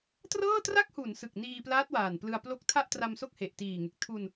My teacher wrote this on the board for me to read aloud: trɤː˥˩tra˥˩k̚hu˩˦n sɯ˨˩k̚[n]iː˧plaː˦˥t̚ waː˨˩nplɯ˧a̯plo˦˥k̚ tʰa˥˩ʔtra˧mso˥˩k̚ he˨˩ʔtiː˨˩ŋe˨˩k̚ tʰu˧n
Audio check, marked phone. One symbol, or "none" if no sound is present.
n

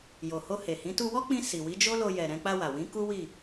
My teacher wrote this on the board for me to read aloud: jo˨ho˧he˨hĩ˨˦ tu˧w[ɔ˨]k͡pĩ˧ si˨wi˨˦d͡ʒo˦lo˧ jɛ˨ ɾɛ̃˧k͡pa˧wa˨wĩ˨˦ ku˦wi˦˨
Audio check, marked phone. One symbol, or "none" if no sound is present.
ɔ˦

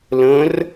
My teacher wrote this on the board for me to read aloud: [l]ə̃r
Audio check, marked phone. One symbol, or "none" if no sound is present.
l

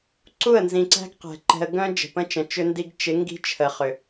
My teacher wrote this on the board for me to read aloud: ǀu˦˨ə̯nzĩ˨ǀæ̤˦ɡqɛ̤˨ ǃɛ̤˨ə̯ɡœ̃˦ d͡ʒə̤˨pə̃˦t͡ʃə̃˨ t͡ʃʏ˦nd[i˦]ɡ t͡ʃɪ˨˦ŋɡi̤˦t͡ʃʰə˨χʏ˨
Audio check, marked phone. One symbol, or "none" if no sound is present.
i˦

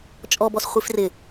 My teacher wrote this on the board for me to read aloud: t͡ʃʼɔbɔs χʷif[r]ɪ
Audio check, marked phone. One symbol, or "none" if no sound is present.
r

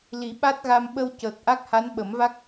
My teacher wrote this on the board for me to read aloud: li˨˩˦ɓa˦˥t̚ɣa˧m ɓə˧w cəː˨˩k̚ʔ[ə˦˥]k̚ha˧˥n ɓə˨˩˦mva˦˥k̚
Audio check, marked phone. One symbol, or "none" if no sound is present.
a˦˥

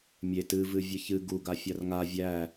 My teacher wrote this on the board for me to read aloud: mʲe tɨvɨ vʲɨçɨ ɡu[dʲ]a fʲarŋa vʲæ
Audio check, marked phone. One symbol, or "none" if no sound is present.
ɡ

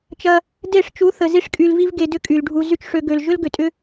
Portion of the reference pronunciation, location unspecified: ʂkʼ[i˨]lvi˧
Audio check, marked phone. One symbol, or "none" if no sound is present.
y˨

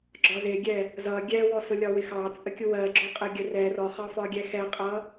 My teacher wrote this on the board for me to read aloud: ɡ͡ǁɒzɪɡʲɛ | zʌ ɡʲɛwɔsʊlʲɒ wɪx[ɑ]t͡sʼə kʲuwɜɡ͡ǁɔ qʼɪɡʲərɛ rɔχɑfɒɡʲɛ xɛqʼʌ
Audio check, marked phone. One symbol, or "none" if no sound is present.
ɑ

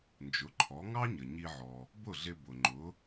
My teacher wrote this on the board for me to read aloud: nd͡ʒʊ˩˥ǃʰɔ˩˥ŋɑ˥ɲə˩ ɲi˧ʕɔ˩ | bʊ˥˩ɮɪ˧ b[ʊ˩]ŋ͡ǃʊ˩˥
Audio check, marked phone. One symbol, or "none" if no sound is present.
ʊ˩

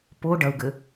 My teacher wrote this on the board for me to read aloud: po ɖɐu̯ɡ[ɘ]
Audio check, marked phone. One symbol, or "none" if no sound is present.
ɘ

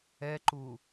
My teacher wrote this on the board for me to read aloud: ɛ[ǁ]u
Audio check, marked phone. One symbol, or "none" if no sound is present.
ǃ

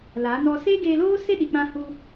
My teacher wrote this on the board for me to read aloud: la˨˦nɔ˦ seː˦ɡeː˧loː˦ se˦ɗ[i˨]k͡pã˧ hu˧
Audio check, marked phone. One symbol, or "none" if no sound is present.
i˨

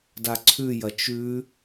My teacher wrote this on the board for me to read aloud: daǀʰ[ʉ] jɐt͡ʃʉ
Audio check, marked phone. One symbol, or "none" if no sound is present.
ʉ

